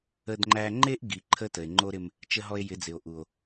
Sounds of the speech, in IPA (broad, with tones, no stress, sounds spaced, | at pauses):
ə˦ d ŋ͡ǃ æ˦ ŋ͡ǃ e˦ ʔ ɡ i˨ ǃʰ ə˦ t ə˨ e̯ ŋ͡ǃ o˦ ɾ ɪ˦ m | t͡ʃ ə˦ ɦ ɔ˦ e̯ j ɪ˨˦ d͡z ɪ˨ o̯ ʔ u˨ o̯